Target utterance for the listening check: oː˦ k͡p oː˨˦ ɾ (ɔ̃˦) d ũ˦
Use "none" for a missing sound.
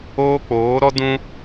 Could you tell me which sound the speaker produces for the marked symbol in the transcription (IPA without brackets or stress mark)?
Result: ɔ˦